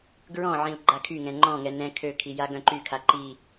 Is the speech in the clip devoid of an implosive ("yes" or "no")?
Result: yes